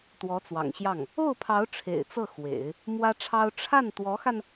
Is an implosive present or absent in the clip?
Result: absent